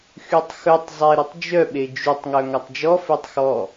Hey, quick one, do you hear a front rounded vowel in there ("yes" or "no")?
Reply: yes